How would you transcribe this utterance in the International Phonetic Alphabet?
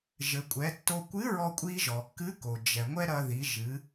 ʒ ɘ˩ kʷʼ ɛ˩˧ tː o˧ kʷ ɨ˧˥ ɹ ɔ˧ kʷʼ i˧ ʒ ɔ˩ kː ɨ˧˥ k o˩ d͡ʒ ɛ˩ ŋʷ ɛ˥ ɾ ɐ˧ ð i˩˧ ʒ ɨ˩˧

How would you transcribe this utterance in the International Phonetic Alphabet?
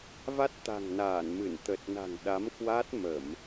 v a˦˥ t̚ t̪ a̤˨˩ ŋ n aː˧˩ n m ɨ˧˩ n t̪ ə˨˩ t̚ n a̤˨˩ ŋ ɗ a˨˦ m k w a˦˥ t̚ m ə˧˩˨ m

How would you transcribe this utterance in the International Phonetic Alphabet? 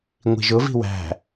ŋʷ i̤ ʒ ʊ v i̤ w æ̤

